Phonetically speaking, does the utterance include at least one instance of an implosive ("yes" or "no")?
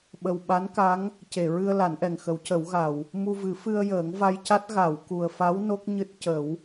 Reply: yes